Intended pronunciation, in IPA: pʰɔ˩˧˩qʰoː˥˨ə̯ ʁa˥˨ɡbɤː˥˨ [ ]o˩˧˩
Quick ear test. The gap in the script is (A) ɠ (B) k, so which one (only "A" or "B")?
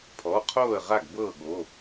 A